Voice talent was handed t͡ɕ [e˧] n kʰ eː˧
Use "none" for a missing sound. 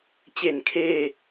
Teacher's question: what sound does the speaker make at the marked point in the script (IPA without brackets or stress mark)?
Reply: e˨˩